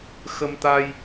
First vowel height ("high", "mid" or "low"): mid